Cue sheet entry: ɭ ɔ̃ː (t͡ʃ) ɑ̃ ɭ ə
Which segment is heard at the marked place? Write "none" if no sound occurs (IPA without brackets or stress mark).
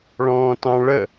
t